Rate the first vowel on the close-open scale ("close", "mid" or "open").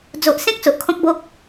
mid